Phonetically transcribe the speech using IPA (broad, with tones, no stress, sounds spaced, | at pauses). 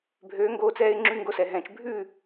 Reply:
bʱ øː˨˦ ŋ ɡ oː˧ t͡s ɛː˧ ɪ̯ ŋ͡ǁ y˧ ŋ ɡ o˧ s ɛ˨ ɦ ɛ̃ː˨ t͡ʃ bʱ ʉ˦˨